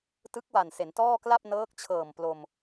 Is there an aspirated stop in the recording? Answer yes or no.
yes